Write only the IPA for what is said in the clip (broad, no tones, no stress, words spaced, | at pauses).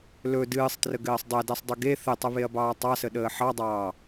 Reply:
lɵ dɨːsˤtrəɡɘːsˤ dˤɛdɛsˤdˤɨ ɡe θɘtˤəβeɐ̯bɑː tˤɑsəɗəː ħɑdˤɑː